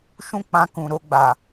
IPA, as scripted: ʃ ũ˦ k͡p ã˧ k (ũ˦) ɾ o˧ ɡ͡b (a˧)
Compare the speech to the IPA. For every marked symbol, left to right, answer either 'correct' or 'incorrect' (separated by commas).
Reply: incorrect, incorrect